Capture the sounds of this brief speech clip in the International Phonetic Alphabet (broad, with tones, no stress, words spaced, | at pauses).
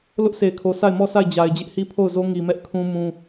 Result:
lʊ˦ʔse˨ɪ̯kʰo˨ sʰa˦˨ɪ̯mɔ˦˨ sʰa˦˨ɪ̯d͡ʑa˨ɪ̯d͡ʑɪ˦ʔ hi˦pʰo˦˨ʊ̯zo˦ ŋi˨mɛ˦ʔkʰũ˦ mũ˦